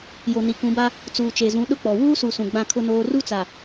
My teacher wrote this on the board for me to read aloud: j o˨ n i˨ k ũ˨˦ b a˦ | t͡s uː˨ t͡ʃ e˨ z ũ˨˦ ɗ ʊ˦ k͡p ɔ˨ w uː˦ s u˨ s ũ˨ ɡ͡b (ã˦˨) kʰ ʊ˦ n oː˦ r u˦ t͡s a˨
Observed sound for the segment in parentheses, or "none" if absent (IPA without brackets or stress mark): ã˦˨